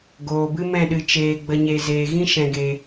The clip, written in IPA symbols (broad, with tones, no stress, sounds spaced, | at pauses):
ɡ oː˨ b ɨ˦ m ɛ̃˦˨ ɗ ɨ˧ t͡ʃ eː˧ ɡ͡b ə˧ ɲ e˧ z eː˨ ɣ ĩ˦ ʃ ɛ̃˧ ɡ e˧